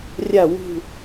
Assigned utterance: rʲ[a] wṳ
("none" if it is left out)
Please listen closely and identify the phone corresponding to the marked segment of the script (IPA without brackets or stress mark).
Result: a